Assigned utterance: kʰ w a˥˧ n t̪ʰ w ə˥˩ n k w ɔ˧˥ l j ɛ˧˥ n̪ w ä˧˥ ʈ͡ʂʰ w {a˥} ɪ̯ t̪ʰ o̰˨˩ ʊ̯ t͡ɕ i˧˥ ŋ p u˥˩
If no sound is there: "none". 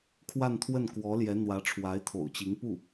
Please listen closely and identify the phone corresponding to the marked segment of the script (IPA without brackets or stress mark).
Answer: a˧˥